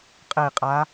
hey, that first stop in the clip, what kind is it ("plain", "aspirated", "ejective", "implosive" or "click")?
ejective